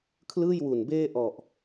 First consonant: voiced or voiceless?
voiceless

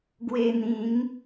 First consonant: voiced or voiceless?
voiced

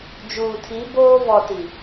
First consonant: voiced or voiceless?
voiced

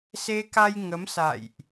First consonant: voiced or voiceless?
voiceless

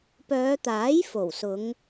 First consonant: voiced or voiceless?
voiceless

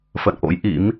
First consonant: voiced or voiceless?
voiceless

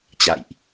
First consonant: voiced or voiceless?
voiceless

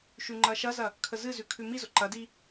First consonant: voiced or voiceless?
voiceless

